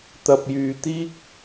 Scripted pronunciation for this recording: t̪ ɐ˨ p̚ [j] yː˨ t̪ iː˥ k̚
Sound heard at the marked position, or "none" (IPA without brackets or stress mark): j